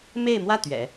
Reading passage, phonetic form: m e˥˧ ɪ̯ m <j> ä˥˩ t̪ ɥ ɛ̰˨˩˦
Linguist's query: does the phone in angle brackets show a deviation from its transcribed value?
yes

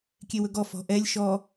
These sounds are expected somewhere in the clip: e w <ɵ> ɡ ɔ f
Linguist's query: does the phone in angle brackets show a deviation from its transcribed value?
no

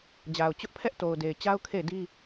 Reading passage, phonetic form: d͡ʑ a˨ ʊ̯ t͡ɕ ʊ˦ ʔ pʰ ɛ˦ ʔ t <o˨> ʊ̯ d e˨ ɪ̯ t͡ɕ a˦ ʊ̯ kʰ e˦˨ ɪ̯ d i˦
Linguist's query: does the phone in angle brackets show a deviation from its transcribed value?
no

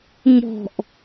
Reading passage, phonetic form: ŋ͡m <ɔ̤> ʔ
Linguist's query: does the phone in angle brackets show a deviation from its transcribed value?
no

